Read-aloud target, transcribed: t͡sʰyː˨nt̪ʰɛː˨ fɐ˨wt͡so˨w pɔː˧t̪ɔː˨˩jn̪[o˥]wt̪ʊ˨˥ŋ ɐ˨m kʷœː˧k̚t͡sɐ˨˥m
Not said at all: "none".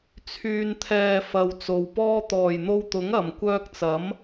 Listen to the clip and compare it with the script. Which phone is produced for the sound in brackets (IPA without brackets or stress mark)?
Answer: o˧